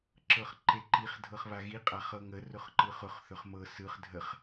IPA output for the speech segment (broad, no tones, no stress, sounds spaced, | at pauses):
ǁ ɤ χ ǃ e ǃ i χ dʱ ɤ χ β a ɣ i qʼ a χ ɤ ŋ ə r ʊ χ ǃ ɯ χ ʊ χ θ ɵ χ m ɤ s ɯ χ dʱ ə χ